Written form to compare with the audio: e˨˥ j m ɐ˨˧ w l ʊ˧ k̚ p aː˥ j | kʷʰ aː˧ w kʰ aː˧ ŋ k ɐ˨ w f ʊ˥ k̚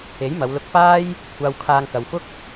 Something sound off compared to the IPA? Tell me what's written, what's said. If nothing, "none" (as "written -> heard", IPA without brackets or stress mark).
none